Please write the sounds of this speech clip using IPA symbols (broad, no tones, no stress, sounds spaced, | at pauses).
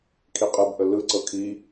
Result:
kʰ i qʼ ɯ b ʔ ə l ɯ ǀ ɤ kʰ i